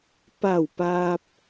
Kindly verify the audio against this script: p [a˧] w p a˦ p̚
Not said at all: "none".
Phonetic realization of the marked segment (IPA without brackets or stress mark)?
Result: a˥˧